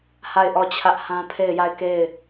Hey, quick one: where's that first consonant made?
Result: throat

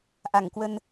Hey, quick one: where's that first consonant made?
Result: throat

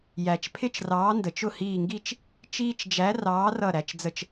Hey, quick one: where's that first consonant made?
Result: palate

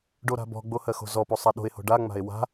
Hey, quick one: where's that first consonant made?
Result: retroflex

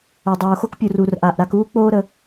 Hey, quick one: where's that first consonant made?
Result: tongue tip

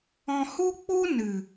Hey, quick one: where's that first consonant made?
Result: throat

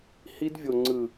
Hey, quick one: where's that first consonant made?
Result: throat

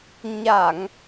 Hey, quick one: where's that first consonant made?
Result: palate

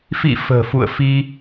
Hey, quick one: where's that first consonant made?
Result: lips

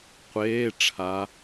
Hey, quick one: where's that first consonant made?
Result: uvula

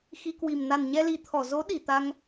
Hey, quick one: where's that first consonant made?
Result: velum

